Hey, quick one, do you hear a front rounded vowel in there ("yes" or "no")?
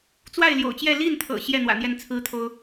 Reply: no